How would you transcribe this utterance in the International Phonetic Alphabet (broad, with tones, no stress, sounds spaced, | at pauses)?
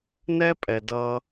n ɛ˦ pʼ ɛ˨ d ʌ˦